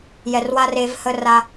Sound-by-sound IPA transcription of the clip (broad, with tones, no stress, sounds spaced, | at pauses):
j ɛ˨ r w a˦ r e˦ v h ə˦ r a˦